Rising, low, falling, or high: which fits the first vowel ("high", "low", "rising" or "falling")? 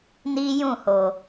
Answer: high